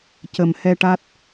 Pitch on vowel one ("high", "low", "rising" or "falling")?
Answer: low